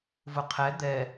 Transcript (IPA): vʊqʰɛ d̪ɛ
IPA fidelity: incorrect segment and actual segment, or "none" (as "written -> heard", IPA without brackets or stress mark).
none